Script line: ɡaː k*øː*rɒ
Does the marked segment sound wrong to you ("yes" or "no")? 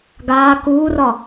yes